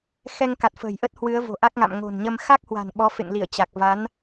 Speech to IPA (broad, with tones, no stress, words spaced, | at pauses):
xɛ˧ŋka˨˩t̚fə̤ː˨˩jʔə˦˥t̚ hwɨ˨˦ə̯vo̤˨˩ʔa˦˥k̚ŋa̰˧˨m ŋo̤˨˩nɲə˧m xa˦˥k̚hwa̤˨˩n ɓɔ˨˦fḛ˧˨ŋli˧˩ə̯ t͡ɕa˨˩k̚ va˨˦n